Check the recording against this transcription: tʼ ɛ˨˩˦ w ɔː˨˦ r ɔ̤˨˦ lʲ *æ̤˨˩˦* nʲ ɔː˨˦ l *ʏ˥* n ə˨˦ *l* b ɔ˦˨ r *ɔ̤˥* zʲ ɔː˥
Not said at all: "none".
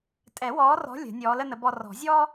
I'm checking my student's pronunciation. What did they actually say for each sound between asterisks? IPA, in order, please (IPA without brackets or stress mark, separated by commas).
ə̤˨˩˦, ə˥, none, ɔ̤˨˩˦